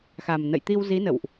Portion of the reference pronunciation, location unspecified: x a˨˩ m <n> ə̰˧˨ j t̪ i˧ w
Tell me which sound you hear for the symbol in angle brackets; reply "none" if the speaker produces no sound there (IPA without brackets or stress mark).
n